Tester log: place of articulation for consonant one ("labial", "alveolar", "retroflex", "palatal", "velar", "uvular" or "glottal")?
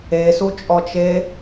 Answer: alveolar